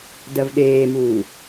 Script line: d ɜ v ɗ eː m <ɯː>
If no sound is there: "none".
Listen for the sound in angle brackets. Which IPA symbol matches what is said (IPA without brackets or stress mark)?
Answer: uː